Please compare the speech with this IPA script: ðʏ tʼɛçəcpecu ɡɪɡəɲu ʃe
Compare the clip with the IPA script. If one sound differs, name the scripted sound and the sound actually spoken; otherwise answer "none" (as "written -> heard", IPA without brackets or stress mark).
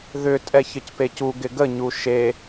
none